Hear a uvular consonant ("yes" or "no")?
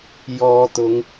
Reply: no